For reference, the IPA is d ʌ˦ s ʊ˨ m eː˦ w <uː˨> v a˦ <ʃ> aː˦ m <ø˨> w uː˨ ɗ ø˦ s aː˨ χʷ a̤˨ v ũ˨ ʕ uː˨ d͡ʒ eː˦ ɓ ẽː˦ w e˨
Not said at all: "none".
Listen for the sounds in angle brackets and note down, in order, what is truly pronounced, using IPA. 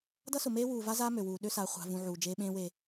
uː˨, z, ø˨

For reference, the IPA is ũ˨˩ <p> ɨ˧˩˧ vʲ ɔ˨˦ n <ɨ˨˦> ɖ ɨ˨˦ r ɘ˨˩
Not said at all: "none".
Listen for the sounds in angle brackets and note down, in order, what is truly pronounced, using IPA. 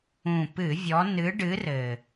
p, ɨ˨˦

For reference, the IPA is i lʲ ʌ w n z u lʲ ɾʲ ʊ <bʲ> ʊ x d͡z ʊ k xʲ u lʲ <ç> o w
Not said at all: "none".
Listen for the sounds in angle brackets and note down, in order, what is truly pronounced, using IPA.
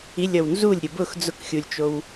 b, t͡ʃ

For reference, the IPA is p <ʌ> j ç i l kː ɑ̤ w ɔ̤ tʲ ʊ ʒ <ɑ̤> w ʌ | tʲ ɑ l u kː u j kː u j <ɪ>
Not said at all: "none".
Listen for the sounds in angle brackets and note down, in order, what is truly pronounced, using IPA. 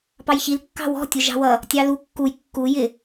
ɑ, ɑ̤, ɪ

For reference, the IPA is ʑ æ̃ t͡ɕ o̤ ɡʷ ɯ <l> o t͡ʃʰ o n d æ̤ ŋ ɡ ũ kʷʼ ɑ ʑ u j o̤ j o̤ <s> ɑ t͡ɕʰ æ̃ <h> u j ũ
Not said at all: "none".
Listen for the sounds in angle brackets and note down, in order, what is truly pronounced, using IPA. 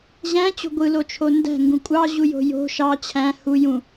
l, ʃ, h

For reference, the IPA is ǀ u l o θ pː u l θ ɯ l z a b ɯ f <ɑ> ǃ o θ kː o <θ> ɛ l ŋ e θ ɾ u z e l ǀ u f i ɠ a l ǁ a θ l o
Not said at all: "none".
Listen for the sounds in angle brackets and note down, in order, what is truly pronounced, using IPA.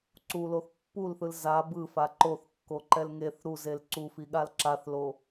a, ǃ

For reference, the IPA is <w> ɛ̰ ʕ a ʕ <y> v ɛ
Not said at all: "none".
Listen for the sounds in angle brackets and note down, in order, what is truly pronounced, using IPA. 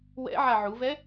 w, u

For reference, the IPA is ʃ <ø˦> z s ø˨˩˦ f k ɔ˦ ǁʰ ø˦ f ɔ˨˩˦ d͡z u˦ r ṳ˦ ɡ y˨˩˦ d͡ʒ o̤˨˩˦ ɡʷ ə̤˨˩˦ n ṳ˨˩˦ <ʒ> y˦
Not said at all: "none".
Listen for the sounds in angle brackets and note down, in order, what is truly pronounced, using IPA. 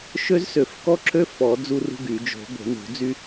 ø˦, d͡z

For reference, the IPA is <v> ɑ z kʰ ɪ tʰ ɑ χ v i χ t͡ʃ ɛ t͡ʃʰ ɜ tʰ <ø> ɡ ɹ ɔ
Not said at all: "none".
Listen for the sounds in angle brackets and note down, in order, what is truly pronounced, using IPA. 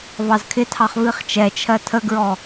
v, ə

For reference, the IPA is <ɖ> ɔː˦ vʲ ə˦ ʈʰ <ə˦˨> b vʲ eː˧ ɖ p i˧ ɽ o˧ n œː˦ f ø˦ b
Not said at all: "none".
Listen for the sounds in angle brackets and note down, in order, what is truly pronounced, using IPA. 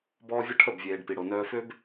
b, ə˦˨

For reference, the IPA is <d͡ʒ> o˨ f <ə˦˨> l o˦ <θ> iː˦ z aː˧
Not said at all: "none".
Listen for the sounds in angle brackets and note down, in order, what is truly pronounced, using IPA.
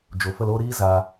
d͡ʒ, ə˦˨, ɾ

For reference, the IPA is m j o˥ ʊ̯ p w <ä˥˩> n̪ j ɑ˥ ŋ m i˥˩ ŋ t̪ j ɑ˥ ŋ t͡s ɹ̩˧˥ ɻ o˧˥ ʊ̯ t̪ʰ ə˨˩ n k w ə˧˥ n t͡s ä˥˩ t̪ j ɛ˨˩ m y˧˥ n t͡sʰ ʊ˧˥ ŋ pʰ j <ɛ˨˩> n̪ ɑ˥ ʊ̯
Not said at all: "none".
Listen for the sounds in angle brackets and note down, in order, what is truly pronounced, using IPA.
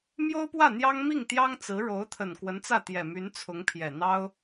ä˥˩, ɛ˨˩

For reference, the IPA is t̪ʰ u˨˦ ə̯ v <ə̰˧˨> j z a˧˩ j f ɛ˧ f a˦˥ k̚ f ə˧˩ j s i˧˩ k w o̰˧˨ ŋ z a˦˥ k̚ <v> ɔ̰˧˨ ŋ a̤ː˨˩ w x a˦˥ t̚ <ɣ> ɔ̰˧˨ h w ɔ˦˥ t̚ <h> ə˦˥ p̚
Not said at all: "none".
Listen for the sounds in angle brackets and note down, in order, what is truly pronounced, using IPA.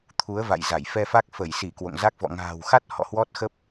a̰˧˨, v, h, x

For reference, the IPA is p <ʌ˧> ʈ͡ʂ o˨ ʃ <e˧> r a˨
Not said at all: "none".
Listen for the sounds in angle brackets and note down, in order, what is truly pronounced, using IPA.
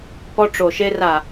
ɔ˧, e˧

